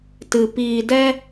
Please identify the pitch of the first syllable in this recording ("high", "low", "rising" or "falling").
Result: low